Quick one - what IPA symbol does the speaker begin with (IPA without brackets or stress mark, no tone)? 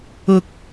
ʊ